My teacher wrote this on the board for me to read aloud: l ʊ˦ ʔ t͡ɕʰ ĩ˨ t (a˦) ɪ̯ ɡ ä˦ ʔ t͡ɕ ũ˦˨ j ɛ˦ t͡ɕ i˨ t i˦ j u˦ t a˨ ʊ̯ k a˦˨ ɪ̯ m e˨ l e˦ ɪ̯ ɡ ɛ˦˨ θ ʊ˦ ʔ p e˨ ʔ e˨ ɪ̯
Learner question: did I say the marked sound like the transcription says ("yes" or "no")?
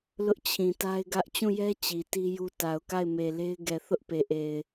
yes